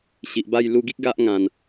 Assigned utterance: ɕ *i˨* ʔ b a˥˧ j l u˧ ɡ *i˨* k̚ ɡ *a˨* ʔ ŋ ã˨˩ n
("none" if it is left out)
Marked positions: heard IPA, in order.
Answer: i˨, i˦, a˦

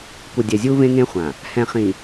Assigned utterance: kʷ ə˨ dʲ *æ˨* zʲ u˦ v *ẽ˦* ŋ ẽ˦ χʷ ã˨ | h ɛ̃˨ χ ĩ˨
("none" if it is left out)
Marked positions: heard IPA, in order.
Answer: ɛ˨, ẽ˦

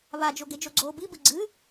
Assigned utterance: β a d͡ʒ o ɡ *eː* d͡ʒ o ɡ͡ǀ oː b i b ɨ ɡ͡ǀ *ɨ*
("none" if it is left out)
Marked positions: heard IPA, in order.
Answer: e, ɨ

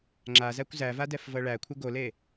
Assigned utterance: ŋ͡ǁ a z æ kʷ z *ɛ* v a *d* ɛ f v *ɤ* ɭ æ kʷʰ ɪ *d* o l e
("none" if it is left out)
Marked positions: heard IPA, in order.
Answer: æ, d, ɤ, ɡ

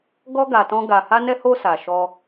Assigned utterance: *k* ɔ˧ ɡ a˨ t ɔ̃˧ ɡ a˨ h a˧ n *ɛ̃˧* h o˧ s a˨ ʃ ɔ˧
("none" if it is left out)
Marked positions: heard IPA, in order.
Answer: ɡ, ɛ˧

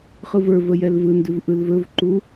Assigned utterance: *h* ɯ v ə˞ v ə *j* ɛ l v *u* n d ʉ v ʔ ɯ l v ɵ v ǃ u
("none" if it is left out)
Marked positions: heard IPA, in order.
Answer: χ, j, ɯ

